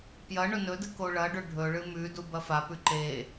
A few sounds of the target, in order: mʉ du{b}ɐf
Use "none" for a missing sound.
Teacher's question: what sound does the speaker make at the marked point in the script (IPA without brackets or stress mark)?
b